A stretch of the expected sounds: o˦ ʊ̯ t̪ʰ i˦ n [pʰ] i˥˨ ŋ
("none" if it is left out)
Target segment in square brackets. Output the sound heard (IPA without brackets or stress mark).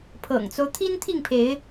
t̪ʰ